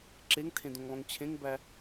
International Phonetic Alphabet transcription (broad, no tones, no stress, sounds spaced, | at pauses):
ǁ e ŋ tʰ ẽ d õ ŋ lˠ õ ŋ t͡ɕʰ ẽ ŋ b æ